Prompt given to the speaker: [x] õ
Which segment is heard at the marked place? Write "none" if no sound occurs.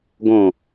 ɡ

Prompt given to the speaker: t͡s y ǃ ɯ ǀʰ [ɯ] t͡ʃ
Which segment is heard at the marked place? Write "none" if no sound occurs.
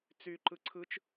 ɯ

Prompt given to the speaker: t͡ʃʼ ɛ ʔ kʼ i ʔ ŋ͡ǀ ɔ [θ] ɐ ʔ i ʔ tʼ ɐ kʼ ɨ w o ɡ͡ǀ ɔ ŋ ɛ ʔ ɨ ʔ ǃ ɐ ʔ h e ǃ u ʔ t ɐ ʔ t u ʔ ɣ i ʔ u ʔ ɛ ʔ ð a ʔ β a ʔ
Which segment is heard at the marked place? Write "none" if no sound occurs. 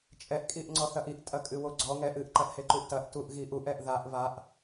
θ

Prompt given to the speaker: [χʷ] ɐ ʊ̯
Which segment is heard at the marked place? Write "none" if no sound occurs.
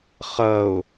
χ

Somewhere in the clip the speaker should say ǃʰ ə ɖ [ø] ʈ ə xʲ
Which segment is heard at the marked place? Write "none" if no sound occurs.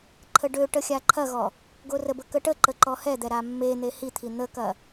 ø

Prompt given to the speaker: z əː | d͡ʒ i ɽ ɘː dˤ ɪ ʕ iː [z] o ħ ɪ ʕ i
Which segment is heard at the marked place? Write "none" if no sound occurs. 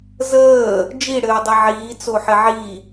t͡s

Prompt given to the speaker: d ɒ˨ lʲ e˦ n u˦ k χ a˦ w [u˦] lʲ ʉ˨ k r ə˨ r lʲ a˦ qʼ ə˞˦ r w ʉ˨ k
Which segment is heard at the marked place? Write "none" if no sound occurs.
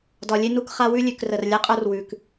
ʉ˦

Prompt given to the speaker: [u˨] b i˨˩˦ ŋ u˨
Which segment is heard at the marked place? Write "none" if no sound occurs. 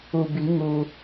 u˨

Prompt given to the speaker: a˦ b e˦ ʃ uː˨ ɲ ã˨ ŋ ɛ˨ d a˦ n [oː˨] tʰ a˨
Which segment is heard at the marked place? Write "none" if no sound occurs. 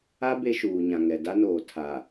oː˨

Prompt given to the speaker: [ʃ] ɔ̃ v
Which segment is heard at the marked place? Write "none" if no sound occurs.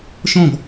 ʃ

